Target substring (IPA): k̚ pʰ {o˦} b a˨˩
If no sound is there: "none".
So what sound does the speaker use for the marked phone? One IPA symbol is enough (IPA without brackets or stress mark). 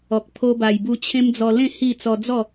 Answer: o˧